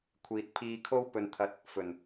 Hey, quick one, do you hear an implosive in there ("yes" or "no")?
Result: no